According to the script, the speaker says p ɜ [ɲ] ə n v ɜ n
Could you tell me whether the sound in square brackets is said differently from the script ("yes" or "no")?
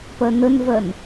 yes